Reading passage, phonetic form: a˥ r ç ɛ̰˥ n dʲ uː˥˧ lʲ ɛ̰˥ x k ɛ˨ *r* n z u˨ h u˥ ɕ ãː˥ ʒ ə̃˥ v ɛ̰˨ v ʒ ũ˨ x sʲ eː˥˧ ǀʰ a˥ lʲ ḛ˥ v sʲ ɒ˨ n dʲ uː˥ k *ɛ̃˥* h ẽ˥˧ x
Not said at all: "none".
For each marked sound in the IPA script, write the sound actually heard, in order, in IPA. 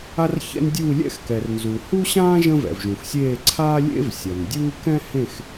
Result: r, ɛ̃˥

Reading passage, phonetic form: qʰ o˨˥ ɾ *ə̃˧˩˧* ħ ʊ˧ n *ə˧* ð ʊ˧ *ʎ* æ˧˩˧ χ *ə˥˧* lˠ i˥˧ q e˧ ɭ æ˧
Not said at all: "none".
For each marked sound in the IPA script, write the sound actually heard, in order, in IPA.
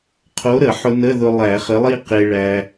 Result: ə˧˩˧, ə˧˥˧, lˠ, ə˨˥

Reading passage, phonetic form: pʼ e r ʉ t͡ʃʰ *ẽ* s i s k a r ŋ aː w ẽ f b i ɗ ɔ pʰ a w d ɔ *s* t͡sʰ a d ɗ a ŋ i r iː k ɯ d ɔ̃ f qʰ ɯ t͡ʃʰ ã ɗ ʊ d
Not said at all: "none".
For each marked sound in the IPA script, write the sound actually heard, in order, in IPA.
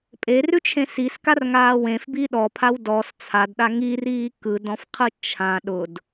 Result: ẽ, s

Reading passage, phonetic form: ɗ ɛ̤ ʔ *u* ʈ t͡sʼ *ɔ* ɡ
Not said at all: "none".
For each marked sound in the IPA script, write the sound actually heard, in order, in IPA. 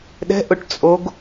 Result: ʊ, o

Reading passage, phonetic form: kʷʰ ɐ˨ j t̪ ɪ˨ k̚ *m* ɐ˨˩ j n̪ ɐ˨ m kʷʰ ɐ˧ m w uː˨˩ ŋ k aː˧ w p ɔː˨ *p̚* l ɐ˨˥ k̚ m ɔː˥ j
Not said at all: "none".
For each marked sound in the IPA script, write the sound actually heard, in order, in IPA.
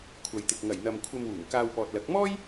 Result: ŋ, t̚

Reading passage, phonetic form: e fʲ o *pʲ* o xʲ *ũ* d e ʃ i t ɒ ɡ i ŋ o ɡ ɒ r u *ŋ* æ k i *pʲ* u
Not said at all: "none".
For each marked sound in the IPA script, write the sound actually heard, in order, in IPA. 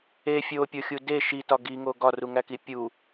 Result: pʲ, u, ŋ, pʲ

